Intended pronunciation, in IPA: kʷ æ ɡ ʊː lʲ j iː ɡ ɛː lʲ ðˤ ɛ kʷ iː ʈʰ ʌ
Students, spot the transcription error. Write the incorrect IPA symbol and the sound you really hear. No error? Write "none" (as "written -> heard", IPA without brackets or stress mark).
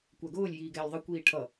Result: none